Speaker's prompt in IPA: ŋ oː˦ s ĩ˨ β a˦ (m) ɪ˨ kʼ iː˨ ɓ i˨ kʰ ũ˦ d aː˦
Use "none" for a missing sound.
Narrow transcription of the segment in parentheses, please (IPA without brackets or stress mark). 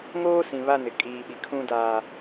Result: n